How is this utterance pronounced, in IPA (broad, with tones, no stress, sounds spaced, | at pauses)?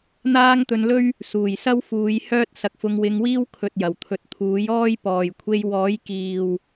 n̪ aː˥ ŋ t̪ ɵ˧ n l ɵ˥ ɥ | s uː˨˩ j s ɐ˥ w f uː˨˧ j h œː˥ t̚ s ɐ˧ k̚ f ʊ˧ ŋ w ɪ˧ ŋ w iː˥ w kʰ ɵ˨ t̚ j ɐ˨˩ w t̪ʰ ɵ˨˥ t̚ t̪ʰ uː˨˥ j ɔː˥ j p ɔː˨ j kʷʰ e˧ j w ɔː˨˥ j k iː˨ w